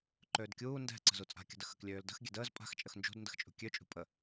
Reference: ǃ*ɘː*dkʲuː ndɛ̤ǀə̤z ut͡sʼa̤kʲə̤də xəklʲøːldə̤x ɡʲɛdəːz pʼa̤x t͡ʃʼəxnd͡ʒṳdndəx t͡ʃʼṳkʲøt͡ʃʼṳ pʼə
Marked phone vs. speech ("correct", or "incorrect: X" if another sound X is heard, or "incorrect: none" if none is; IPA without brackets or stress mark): incorrect: øː